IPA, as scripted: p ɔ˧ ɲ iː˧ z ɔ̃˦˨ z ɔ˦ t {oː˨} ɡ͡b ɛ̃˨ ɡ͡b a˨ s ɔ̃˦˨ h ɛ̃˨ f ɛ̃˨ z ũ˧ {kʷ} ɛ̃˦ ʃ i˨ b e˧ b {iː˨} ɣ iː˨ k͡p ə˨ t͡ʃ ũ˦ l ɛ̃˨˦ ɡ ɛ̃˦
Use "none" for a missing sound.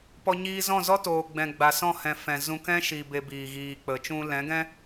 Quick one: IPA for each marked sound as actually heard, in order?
oː˨, k, iː˨

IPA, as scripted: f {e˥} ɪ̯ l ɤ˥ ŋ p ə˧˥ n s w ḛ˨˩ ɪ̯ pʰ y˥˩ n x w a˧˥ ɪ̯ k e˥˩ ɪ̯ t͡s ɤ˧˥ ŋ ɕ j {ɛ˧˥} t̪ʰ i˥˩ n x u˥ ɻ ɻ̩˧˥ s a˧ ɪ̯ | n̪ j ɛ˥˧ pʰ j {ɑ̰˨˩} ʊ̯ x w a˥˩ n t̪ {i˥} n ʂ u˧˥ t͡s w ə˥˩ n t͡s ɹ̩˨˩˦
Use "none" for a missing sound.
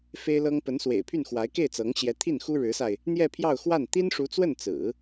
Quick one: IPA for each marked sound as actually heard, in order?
e˥, ɛ˧˥, ɑ˥˧, i˥

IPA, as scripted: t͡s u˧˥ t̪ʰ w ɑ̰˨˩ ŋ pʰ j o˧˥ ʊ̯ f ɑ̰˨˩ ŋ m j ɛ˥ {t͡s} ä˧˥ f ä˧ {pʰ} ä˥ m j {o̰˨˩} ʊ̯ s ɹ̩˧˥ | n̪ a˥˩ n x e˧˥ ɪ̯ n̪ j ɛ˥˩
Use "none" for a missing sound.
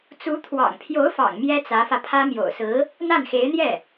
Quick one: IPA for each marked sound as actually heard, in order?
t͡s, pʰ, o̰˨˩

